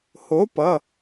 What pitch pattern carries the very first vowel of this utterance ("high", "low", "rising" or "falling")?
rising